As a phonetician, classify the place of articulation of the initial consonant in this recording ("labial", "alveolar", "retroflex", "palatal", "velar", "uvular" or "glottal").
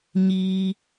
palatal